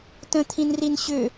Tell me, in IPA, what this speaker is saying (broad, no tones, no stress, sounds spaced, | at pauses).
t ə̃ t̪ʰ ĩ n r i n ɕ ʏ